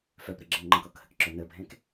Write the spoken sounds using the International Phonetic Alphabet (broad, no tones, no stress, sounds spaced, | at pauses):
f œ p ɾ ə ɡ͡ǁ ə n ŋ͡ǃ ə̃ k ɔ k h ə k ǁ œ n ə bʱ ɛ̃ k